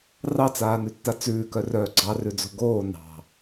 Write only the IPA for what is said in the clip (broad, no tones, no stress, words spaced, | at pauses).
rɑt͡saːnʉtːa t͡sʉːkœrœː ɡ͡ǀɑrʉd͡zo̤ ɡoː nɑ̤